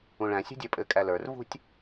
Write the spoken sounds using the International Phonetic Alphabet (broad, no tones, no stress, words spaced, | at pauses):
ũɭæ̃ sʲṳdʲə˞pʼɘ kʼælə˞r vṳtʲ